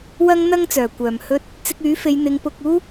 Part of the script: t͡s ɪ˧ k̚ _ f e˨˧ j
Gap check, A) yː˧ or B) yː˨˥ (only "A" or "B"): B